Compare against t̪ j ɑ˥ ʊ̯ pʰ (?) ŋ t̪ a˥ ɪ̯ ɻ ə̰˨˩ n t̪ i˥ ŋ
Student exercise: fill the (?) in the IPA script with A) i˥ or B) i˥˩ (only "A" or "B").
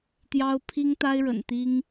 A